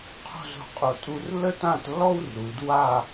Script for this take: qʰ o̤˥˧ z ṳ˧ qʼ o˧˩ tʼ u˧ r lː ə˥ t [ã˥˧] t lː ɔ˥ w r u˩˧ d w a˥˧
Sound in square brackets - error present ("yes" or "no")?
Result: no